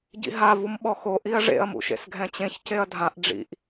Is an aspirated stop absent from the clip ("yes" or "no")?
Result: yes